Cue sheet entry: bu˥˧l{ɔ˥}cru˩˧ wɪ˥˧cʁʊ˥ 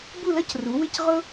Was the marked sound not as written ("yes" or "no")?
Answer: yes